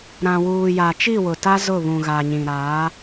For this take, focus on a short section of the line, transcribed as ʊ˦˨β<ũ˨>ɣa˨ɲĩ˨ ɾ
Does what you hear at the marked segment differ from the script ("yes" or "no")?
no